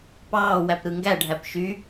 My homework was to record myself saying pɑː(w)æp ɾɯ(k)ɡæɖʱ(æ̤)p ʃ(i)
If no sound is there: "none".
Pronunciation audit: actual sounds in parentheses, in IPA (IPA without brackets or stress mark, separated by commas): w, ŋ, æ, y